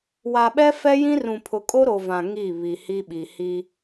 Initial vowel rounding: unrounded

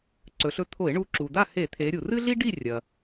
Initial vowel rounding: rounded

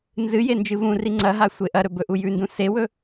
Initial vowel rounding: unrounded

